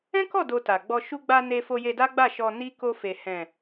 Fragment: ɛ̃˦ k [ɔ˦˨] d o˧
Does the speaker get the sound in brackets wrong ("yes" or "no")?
no